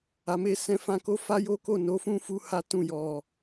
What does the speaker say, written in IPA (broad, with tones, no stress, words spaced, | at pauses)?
a˨me˧sɛ̃˧ fã˧ko˦ fa˦jo˦ko˦˨ no˨˦fũ˦fu˧ ha˦tũ˦˨ jɔ˨